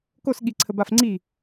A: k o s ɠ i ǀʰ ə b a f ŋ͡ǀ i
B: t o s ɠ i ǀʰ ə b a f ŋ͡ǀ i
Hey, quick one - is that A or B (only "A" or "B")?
A